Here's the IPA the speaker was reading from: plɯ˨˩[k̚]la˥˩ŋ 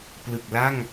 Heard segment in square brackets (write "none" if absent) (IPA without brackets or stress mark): k̚